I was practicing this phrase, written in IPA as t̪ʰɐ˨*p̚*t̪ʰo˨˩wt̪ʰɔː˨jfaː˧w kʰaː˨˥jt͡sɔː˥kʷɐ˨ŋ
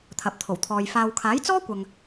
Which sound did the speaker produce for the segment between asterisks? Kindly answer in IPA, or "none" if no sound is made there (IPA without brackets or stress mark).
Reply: p̚